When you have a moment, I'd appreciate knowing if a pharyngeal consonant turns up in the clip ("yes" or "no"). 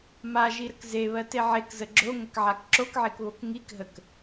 yes